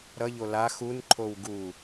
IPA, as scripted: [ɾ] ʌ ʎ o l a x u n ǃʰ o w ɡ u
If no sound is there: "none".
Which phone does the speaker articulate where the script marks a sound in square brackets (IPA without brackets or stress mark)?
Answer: ɾ